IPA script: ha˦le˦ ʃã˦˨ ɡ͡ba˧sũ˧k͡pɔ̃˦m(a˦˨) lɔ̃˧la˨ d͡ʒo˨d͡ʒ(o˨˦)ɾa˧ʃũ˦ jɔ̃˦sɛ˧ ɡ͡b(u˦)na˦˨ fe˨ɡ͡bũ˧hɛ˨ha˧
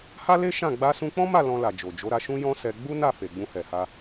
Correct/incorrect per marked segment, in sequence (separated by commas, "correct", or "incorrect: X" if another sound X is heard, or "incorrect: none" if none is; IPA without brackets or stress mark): correct, correct, correct